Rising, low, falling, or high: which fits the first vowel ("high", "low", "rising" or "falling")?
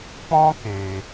high